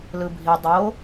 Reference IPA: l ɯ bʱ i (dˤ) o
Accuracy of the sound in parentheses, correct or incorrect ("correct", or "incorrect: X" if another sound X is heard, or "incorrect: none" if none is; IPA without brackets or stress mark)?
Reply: correct